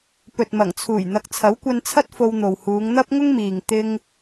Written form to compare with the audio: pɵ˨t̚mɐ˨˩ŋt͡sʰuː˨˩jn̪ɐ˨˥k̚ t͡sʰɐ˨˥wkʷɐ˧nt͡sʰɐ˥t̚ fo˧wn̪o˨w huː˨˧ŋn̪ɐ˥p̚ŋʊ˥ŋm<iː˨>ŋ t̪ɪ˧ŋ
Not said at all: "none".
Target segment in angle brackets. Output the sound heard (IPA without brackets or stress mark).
iː˨